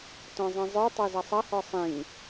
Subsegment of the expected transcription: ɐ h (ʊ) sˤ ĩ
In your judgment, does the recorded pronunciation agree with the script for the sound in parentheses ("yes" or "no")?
no